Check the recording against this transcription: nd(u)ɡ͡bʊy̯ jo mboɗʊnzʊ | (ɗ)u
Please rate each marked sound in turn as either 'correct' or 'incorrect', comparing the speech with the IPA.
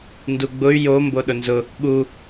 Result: correct, incorrect

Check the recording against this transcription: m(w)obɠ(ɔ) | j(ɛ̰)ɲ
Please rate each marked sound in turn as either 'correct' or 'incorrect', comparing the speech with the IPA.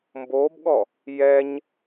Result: incorrect, correct, incorrect

